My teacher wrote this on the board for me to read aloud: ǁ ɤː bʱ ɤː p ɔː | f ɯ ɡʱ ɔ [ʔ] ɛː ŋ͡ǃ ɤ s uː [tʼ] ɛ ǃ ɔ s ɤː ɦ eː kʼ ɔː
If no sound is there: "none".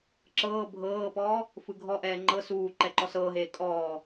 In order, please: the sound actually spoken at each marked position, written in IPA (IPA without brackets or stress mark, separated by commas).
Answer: ʔ, ǃ